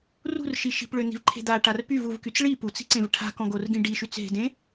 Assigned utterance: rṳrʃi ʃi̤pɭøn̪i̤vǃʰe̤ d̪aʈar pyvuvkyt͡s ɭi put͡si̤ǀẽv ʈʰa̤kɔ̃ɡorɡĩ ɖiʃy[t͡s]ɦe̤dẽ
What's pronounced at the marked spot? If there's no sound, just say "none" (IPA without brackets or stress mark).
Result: t͡s